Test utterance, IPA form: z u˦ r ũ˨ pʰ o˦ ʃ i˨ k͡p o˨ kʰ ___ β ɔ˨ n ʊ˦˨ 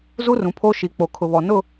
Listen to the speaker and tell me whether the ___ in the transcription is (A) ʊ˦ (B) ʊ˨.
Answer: B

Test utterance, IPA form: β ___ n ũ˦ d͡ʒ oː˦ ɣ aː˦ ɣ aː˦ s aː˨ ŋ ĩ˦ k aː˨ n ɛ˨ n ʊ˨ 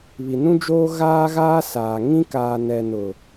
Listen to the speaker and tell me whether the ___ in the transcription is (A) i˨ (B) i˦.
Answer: A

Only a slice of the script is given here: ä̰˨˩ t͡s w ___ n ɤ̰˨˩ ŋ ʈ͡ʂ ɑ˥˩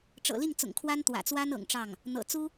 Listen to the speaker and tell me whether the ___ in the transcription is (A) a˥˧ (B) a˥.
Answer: B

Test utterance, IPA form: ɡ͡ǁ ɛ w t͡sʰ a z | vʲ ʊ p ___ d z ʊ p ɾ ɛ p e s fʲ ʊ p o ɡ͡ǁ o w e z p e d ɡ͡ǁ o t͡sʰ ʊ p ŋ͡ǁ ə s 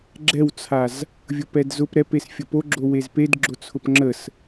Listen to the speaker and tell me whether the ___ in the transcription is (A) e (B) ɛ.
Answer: B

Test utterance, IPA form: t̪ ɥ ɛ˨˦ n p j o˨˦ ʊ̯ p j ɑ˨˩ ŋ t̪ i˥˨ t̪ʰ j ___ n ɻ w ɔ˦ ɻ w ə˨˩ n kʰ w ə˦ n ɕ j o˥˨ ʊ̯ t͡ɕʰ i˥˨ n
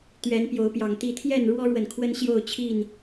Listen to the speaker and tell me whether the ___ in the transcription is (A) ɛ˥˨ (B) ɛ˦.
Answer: A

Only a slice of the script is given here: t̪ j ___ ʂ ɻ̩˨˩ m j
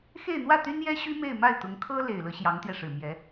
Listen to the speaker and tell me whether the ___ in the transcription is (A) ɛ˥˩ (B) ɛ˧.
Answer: B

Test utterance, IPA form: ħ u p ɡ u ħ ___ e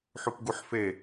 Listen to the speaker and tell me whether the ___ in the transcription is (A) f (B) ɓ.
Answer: A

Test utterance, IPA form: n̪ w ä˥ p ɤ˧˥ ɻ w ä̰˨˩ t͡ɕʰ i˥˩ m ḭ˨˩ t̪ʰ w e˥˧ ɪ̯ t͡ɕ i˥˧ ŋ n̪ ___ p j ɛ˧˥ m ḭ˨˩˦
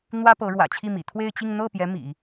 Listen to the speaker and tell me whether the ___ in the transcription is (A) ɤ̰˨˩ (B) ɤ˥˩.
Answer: B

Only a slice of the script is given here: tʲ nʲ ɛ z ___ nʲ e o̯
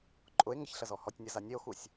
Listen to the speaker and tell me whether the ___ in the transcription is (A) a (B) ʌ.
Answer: A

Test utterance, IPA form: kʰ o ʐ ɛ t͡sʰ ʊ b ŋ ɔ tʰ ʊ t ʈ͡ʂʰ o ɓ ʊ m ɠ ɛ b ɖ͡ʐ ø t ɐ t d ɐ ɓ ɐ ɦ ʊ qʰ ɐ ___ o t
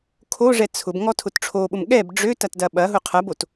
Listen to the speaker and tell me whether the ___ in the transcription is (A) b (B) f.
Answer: A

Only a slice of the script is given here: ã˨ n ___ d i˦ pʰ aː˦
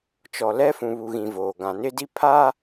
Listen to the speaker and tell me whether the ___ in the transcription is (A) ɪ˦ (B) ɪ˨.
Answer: A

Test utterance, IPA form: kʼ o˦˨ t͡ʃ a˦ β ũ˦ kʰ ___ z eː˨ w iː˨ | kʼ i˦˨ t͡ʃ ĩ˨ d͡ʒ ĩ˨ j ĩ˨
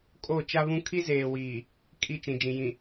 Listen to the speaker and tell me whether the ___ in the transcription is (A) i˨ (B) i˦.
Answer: B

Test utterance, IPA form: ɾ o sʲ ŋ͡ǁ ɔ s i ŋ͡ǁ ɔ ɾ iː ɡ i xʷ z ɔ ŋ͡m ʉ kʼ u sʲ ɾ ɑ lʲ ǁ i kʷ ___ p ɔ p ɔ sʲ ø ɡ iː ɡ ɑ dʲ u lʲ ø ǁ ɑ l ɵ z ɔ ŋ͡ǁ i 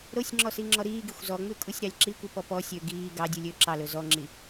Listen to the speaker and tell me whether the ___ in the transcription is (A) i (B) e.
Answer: A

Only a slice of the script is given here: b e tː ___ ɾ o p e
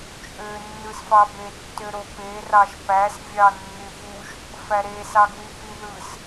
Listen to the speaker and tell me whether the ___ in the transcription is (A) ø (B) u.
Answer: A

